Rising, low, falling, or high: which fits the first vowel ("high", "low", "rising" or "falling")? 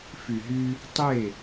low